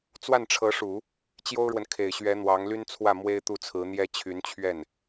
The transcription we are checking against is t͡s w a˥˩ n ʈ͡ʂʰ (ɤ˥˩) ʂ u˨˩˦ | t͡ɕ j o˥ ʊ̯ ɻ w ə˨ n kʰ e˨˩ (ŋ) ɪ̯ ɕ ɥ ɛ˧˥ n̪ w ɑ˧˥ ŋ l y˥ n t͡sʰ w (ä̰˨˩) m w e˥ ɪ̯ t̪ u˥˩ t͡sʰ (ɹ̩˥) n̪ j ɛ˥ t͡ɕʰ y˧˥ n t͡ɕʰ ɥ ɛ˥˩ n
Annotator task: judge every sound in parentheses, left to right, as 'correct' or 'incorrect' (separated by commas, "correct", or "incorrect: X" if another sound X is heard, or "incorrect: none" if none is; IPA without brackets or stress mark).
incorrect: ɤ˧˥, incorrect: none, incorrect: ä˥˩, incorrect: ɹ̩˧˥